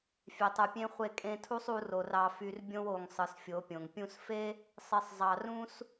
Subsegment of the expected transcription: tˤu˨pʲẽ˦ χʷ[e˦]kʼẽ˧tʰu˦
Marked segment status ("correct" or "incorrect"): incorrect